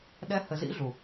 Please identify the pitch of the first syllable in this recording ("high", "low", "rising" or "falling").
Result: high